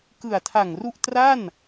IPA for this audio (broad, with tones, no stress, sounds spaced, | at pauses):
k ɯ˨˩ a̯ tʰ a˨˩ ŋ r u˥˩ ʔ t r a˥˩ n